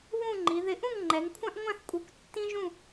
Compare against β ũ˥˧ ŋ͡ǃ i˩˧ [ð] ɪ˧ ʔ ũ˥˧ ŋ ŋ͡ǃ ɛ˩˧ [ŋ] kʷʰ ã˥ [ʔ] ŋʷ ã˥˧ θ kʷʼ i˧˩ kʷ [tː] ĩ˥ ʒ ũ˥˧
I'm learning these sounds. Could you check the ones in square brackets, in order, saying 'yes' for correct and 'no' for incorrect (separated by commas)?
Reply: yes, yes, yes, yes